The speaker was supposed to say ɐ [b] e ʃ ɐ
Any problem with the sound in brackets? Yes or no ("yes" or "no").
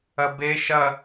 no